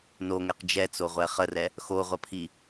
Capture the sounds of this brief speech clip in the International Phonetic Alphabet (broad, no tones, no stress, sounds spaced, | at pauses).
n o ŋ ɛ q d͡ʒ ɛ t͡s o ʁʷ ɛ χ ə r ɛ | x o ʁʷ ɐ pʰ i